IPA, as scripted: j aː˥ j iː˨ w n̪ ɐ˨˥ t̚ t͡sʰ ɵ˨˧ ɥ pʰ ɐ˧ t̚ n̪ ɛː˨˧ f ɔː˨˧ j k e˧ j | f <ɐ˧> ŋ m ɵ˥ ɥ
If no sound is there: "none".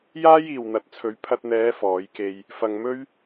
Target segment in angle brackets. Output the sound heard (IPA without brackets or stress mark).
ɐ˧